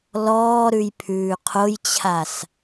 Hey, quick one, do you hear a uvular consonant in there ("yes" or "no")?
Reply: yes